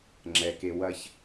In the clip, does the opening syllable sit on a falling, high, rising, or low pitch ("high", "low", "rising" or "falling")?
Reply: low